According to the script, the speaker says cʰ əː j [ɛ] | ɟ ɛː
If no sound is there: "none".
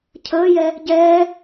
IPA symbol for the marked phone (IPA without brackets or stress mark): ɛ